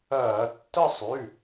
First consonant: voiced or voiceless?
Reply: voiceless